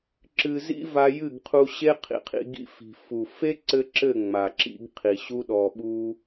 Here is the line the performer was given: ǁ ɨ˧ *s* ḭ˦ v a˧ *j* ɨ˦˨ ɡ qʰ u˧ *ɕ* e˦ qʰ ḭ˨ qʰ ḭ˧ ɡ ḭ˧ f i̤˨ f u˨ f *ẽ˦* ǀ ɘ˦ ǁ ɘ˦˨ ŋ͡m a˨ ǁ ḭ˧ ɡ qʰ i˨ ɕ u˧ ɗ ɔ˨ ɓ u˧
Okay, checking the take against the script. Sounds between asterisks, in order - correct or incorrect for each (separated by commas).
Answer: incorrect, correct, correct, incorrect